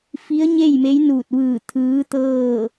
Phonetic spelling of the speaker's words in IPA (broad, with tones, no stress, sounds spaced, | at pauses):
f i˧˥ ə̯ ɲ e˥˨ j m e˧˥ j n uː˧˩ t̚ ʋ ɯː˧˩ t̪ʰ ɯː˧˥ t̪ ɤː˥˨